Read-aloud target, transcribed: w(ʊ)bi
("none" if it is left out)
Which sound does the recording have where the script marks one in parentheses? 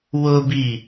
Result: ʊ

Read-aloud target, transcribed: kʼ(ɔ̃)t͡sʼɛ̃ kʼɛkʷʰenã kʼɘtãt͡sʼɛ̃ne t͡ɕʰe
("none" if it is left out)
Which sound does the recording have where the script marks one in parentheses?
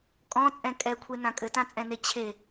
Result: ɔ̃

